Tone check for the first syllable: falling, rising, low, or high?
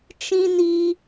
high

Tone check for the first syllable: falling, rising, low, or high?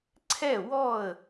falling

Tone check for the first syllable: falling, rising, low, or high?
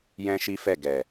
high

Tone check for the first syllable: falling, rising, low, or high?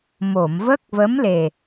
low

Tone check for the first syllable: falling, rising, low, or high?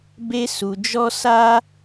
high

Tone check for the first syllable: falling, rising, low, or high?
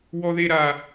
high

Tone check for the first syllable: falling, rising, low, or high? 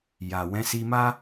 low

